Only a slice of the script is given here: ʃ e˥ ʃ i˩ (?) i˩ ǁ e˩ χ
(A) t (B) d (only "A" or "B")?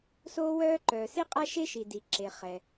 B